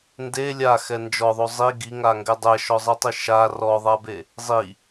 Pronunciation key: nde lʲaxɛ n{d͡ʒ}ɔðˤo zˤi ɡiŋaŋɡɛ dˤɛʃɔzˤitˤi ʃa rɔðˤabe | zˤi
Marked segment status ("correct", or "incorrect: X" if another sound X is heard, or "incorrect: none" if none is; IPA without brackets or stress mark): correct